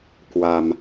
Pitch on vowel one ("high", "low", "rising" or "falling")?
low